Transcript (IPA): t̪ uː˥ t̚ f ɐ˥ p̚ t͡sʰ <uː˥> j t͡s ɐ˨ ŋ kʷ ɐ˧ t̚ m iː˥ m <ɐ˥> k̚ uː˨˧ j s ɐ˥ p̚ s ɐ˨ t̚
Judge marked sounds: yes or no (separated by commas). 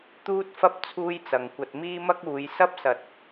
yes, yes